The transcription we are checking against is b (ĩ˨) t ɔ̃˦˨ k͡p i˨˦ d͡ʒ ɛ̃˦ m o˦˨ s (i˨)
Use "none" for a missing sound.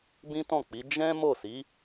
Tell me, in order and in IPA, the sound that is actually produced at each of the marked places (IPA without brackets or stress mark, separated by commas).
ĩ˦, i˨˦